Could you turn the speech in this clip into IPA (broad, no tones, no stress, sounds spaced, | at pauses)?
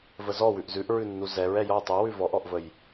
v ə z ɔ w ʉ ʔ z ʉ ʔ ɹ ʉ nː u z ɛ ɹ ɛ j ɔ tˤ ʉ w ʉ v ɔ ʔ ɔ ʔ v ə j